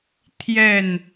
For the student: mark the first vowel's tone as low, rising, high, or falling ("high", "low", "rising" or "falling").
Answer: falling